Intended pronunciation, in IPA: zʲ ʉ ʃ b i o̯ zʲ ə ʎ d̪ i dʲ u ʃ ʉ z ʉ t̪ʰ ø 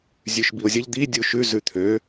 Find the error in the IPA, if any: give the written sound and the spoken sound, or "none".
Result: none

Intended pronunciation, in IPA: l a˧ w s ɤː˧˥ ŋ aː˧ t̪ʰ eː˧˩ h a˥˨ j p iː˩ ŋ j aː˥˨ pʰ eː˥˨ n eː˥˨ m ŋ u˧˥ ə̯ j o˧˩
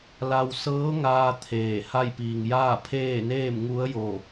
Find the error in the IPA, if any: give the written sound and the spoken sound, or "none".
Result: none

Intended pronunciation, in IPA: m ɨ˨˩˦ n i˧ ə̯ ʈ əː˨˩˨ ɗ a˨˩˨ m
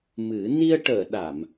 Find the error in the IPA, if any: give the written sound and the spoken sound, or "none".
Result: none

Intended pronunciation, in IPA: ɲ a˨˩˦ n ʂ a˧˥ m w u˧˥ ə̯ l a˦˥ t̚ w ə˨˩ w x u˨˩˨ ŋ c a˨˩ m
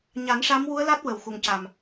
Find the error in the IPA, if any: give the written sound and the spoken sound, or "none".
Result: none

